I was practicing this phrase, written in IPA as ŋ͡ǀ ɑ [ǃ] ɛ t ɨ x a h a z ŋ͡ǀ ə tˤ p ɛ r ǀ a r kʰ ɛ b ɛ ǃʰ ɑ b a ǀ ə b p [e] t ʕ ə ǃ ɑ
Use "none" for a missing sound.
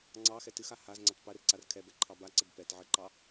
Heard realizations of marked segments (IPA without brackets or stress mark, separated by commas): x, ɛ